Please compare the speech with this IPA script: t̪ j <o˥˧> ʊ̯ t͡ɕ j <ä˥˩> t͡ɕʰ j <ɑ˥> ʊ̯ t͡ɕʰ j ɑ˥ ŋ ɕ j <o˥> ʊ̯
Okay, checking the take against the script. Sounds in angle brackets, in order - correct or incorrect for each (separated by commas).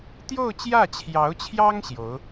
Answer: correct, correct, incorrect, incorrect